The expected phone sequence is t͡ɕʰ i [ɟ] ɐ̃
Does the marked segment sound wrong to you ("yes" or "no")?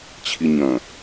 yes